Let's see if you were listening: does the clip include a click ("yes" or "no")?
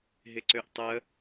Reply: yes